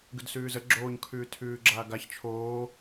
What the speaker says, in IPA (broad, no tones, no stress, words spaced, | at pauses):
ɡʉdsʉːzə ɡ͡ǁoːɲ kʰʉːtʰʉːɡ͡ǁaːɡaç t͡ʃʰoː